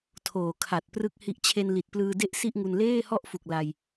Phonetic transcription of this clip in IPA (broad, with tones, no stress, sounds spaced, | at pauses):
tʰ oː˨˩ kʰ a˨˩ t̚ p r ɯ˥˩ k̚ h i˦˥ ʔ t͡ɕʰ e˧ n l i˨˩ t̚ p l ɯː˧ d e˦˥ ʔ s i˥˩ ʔ ŋ u˧ n l eː˥˩ h ɔ˥˩ ʔ f u˨˩ k̚ l a˧ j